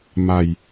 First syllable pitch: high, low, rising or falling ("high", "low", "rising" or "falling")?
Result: low